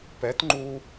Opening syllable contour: rising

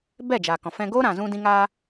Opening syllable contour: falling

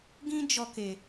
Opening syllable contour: high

